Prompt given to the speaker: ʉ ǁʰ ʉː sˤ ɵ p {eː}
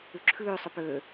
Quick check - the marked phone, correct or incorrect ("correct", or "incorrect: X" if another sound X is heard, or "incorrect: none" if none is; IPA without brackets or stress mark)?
incorrect: øː